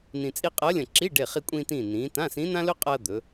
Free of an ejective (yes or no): no